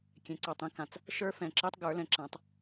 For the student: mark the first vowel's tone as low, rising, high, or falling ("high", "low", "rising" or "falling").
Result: low